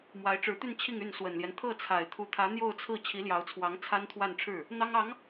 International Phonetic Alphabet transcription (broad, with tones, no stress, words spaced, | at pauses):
mwa˧˥ɪ̯ʈ͡ʂɻ̩˧˥t̪y˥˧n t͡ɕʰi˥˧ŋy˥˩n swə˨˩nljɛ˦n t̪ʰɤ˥˩t͡sʰa˨˩ɪ̯ t̪ʰu˧˥t̪ʰä˧˥ n̪jo˥˧ʊ̯t͡sʰɹ̩˥˩ t͡ɕʰi˧˥ljɑ˧˥ʊ̯t͡sʰwɑ˧˥ŋ t͡sʰa˥nt̪ʰwa˥˧nʈ͡ʂʰɻ̩˥˩ | n̪ɑ˥ŋɑ˧˥ŋ